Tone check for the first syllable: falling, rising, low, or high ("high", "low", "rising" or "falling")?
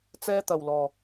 high